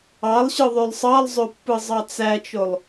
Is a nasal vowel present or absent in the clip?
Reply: absent